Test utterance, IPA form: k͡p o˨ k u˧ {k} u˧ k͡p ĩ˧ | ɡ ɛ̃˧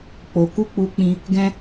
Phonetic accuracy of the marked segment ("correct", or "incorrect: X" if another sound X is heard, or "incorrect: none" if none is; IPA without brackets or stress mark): incorrect: k͡p